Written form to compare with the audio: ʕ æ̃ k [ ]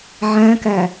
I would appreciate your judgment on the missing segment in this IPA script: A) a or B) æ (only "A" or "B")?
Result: B